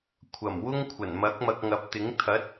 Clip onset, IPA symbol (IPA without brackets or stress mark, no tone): kʷʰ